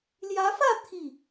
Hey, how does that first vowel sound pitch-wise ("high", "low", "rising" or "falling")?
rising